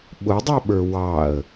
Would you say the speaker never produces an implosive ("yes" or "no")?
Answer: no